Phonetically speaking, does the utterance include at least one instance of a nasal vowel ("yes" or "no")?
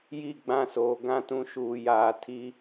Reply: yes